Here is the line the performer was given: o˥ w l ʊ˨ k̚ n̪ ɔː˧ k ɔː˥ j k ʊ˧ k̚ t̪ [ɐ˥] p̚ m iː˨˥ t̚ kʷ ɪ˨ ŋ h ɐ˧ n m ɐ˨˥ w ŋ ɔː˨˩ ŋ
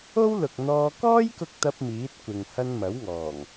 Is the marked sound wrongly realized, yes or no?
no